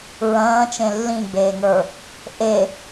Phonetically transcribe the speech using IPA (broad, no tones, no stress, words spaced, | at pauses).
ɹɐ̃ːt͡ʃẽ lːĩɡ͡beːŋə˞ | ʔe